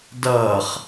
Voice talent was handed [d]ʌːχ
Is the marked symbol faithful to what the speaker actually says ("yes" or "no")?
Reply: yes